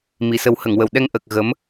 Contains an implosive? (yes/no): yes